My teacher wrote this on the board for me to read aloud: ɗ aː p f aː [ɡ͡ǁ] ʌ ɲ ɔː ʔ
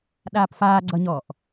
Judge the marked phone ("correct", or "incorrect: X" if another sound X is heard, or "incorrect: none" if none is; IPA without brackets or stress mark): incorrect: ɡ͡ǀ